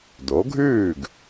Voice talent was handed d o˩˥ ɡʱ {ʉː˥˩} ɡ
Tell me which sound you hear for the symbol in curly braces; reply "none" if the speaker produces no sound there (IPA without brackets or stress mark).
ʉː˥˩